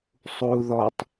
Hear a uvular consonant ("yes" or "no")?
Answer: no